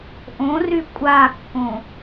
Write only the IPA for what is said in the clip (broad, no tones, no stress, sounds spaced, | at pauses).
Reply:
ʔ õ r y kʷʼ a kː õ